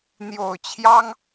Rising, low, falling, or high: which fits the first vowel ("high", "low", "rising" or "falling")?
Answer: low